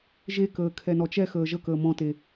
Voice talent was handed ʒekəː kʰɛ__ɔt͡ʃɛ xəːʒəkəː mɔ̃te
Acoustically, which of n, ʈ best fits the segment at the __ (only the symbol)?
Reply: n